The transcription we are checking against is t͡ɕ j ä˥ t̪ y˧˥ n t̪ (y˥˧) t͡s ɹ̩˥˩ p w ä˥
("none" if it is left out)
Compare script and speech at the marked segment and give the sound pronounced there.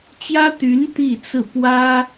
i˥˧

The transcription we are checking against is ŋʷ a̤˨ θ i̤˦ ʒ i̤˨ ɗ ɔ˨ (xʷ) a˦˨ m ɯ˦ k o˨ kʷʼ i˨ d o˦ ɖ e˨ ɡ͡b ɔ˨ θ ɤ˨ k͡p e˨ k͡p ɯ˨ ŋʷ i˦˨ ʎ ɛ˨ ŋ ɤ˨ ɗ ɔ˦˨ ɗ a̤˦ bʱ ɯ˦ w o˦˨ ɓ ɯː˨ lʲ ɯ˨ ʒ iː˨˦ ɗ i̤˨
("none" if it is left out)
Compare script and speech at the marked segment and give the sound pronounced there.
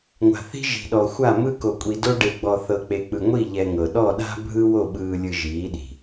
xʷ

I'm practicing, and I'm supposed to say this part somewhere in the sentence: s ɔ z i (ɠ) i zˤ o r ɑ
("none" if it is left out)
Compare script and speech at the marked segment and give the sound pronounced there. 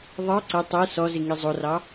ŋ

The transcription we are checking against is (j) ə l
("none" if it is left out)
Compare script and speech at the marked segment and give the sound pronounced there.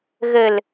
ɣ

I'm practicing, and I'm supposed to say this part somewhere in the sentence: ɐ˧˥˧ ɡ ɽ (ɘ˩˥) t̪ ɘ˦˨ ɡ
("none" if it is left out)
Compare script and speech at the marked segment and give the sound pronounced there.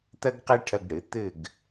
ɘ˩˥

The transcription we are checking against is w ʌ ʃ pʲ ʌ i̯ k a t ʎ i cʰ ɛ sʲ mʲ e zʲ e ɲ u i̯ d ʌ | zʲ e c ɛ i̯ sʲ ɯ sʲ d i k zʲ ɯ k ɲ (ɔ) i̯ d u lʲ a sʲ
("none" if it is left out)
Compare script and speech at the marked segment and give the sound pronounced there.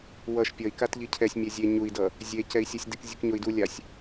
o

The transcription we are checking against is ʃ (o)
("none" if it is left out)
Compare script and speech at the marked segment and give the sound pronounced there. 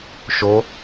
o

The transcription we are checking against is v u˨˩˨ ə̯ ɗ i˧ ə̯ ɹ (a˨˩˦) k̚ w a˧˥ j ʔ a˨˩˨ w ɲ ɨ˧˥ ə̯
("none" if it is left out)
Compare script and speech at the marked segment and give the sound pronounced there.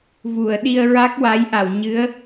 a˦˥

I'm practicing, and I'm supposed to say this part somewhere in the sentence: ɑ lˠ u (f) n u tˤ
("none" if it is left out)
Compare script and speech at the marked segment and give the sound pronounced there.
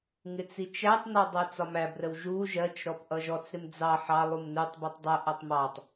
m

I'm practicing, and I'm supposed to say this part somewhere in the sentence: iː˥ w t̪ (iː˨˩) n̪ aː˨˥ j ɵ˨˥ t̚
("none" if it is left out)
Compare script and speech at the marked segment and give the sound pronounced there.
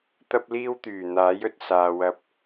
yː˨˩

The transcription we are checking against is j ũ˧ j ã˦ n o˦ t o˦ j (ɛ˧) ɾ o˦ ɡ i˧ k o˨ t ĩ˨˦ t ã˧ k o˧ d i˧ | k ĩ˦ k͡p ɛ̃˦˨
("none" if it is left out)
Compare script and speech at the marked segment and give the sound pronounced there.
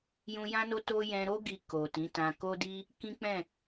ɛ̃˧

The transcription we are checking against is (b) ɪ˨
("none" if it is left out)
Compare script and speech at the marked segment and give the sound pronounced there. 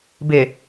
b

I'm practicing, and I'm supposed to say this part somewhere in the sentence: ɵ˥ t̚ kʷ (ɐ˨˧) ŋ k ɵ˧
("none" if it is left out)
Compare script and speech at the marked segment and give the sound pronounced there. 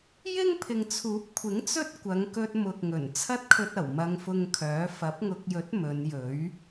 ɐ˨˧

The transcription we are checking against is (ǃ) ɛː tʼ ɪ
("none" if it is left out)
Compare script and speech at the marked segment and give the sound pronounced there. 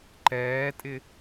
ǃ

